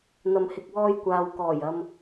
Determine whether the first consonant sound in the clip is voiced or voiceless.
voiced